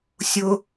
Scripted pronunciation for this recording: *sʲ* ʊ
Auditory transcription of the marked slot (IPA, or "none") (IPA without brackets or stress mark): sʲ